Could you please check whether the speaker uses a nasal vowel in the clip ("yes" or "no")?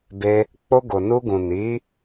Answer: yes